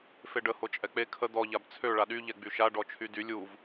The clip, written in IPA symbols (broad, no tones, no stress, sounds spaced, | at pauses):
f e ɖ ə h o t͡ʃʼ ɛ k͡p e kʰ ə d̪ ɔ ʎ a b t͡sʰ ø ɭ a ɗ y ʎ ɛ ɡ͡b y ʃ a ɖ ɔ t͡ʃʰ y d y lʲ u v